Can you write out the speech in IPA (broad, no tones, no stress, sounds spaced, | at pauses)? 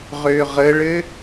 ʁ ø ʁ ə ɭ ɘ